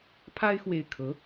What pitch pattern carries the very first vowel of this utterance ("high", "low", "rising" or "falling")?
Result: high